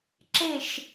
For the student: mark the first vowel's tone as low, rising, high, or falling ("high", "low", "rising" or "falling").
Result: falling